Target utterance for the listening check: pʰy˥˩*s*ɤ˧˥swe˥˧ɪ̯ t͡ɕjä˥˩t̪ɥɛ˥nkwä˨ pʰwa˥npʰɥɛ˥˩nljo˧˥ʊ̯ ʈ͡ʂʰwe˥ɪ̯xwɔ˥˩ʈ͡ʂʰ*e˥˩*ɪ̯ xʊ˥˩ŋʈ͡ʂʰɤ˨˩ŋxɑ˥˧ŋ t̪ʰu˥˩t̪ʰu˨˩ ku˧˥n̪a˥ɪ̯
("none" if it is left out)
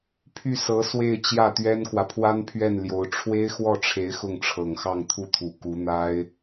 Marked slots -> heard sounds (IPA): s, e˧˥

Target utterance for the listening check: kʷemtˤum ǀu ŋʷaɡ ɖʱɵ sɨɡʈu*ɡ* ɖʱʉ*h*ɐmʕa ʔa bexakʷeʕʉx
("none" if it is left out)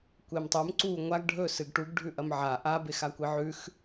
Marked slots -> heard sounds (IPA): ɡ, ʔ

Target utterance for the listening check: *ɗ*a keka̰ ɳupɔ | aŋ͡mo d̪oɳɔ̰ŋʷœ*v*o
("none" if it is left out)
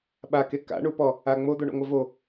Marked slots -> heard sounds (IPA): ɓ, v

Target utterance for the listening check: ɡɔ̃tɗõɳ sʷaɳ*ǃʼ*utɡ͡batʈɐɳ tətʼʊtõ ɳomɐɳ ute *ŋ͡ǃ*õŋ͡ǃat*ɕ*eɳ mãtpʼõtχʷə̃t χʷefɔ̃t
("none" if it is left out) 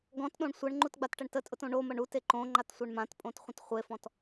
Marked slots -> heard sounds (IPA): ŋ͡ǃ, ǃ, sʷ

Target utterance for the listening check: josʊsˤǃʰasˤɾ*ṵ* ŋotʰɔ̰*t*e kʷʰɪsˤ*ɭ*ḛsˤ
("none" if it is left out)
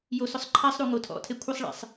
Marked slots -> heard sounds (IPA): u, tʰ, ɭ

